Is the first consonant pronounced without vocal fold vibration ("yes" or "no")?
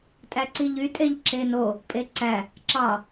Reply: yes